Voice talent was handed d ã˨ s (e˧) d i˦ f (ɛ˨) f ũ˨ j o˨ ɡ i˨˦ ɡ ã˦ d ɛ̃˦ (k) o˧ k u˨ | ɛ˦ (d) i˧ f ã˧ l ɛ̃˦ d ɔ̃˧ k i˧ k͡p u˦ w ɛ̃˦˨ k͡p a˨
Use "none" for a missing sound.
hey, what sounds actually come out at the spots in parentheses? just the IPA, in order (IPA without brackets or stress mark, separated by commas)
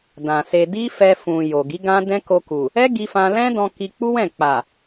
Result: e˧, ɛ˧, k, ɡ